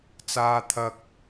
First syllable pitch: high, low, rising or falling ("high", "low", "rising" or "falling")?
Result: high